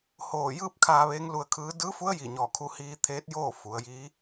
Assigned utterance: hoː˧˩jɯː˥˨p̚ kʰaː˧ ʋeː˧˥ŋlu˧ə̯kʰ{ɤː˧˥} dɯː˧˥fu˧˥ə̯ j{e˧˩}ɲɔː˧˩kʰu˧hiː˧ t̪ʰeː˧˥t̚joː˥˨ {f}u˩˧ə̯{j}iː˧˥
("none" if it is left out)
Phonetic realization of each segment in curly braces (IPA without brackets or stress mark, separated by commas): ɯː˧˥, i˧˩, f, j